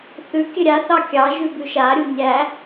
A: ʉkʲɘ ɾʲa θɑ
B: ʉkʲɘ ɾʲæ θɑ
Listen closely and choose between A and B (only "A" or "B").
A